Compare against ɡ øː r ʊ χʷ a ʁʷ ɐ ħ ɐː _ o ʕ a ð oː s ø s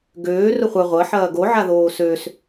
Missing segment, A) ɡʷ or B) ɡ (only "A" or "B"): B